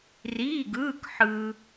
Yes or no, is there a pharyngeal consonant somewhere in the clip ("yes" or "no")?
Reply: yes